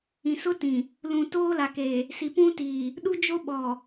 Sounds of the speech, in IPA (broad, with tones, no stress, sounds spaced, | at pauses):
ĩ˨ s ʊ˦ t ĩ˨ | l ũ˨ t oː˦ l a˨ k eː˨ | s i˨ p ũ˦ t iː˨ | ɗ u˦ d͡ʒ o˦ ɓ ɔ˨